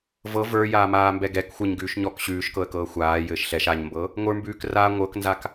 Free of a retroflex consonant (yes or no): yes